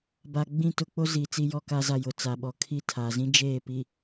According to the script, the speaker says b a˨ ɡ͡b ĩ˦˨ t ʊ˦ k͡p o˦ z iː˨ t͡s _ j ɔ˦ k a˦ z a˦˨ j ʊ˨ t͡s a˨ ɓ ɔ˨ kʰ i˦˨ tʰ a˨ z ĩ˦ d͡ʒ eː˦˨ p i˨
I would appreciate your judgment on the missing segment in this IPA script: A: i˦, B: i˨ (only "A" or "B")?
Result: A